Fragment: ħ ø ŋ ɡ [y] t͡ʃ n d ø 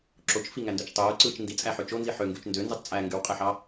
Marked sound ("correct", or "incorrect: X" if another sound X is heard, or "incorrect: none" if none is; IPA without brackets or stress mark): correct